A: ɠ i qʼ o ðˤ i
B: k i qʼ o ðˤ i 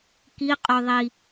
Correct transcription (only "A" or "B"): B